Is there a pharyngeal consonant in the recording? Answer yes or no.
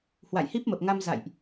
no